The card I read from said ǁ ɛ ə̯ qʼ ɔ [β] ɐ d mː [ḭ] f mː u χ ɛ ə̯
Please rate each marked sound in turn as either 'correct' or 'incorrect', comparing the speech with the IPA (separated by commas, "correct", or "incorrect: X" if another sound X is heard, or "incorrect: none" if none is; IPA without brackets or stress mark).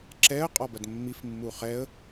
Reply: incorrect: b, incorrect: i